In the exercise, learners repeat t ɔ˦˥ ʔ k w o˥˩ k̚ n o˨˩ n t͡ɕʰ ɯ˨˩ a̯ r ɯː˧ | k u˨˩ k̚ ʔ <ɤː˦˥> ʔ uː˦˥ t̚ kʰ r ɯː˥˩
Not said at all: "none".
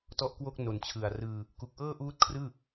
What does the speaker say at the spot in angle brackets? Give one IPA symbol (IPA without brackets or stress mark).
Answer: ɤː˥˩